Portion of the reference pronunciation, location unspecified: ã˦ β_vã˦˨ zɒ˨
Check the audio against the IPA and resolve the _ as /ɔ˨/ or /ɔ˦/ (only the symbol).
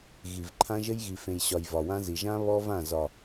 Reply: ɔ˦